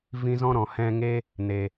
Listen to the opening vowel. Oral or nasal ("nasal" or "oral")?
nasal